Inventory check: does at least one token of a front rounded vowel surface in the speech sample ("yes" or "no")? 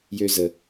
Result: yes